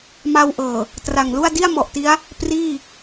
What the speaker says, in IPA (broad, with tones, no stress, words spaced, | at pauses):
ma˧wʔɤː˨˩ | tra˨˩ŋlu˥˩a̯ di˥˩a̯mɔ˨˩ʔti˦˥a̯ | priː˥˩